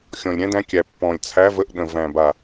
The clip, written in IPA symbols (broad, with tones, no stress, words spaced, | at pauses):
xʲɔ̃˨˩lʲɾʲæ̃˨˦dæ̃˨˦kʲæ˨˩ pːɔ̃˨˩lʲ t͡sʰæ˨˦və˨˦ʔ ɗə̃˨˩ væ̃˨˩ba˨˩